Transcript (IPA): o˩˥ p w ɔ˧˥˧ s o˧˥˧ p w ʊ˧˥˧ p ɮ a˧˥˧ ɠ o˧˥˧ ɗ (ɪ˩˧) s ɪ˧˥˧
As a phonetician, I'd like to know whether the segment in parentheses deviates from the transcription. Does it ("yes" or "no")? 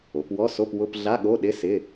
yes